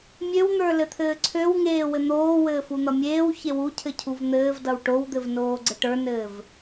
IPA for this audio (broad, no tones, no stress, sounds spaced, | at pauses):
mʲ ø w n̪ ə˞ l ɘ t̪ʰ ɘː ǀʰ ø w ŋ eː w ɘ n̪ oː w ɘː f u n̪ ʌ mʲ eː w ç e w u cʰ ɘ cʰ u v n̪ ɘː v d ʌ w ʈ o w d̪ ɘ v n oː ɡ͡ǀ ɘ ʈ ə˞ n ɘː v